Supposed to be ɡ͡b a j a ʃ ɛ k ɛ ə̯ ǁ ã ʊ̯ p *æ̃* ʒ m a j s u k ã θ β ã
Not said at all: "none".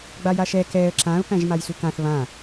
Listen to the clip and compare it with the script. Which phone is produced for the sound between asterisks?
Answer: æ̃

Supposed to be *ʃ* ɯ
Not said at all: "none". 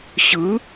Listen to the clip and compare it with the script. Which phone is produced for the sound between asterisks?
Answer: ɕ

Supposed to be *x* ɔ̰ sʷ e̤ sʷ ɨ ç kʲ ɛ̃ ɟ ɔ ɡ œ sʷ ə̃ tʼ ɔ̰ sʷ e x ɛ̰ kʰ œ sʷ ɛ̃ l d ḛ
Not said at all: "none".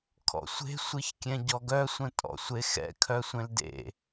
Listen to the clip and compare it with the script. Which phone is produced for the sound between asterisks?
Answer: kʰ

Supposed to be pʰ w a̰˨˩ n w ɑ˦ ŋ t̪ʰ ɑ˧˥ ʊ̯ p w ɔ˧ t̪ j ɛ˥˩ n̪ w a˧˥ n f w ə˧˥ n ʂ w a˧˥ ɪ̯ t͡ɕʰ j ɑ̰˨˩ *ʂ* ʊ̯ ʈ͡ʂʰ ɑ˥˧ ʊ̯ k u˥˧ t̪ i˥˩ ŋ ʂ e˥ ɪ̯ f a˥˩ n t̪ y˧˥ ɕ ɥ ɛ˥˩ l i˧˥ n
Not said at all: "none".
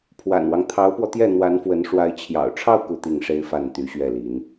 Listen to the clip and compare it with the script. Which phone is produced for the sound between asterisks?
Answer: none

